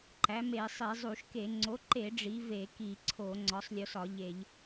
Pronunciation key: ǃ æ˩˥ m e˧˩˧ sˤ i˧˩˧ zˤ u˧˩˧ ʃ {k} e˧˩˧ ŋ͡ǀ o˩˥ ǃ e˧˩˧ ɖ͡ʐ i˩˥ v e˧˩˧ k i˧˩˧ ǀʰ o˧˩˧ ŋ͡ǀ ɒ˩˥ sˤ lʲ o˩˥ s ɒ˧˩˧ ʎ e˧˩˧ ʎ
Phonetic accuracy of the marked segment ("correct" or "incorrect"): correct